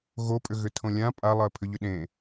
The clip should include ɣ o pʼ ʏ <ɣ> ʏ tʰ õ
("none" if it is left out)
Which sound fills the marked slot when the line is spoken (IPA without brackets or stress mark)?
ɣ